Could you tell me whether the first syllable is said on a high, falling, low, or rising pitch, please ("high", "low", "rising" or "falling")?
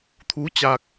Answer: rising